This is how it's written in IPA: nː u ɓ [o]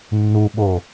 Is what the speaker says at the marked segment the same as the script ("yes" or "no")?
yes